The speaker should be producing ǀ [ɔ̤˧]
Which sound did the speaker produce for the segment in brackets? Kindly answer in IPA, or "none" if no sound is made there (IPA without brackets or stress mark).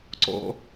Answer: ɔ̰˧